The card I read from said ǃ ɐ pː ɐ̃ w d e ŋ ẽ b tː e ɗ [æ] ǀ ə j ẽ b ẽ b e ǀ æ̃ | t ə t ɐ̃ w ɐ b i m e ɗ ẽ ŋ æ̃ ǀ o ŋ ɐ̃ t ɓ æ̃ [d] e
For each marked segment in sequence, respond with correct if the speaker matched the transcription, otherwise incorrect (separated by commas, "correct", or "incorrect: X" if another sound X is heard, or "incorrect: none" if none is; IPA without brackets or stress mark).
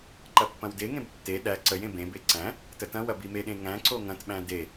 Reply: correct, correct